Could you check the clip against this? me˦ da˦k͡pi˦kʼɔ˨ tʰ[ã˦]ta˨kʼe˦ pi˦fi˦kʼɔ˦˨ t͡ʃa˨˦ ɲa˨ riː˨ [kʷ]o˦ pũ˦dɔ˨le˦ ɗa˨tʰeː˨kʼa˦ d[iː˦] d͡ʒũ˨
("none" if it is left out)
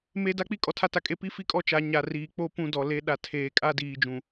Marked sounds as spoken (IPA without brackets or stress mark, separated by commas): a˦, k͡p, iː˨